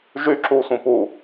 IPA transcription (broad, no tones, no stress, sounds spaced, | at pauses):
ʒ y ǁ u sʷ ĩ p u